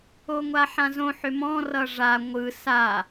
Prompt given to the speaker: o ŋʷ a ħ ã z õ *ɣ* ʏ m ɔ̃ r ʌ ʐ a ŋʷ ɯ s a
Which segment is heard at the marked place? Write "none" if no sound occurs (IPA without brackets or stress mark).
ħ